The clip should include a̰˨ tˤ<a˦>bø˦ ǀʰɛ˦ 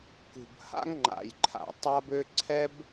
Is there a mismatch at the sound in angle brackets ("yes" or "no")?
no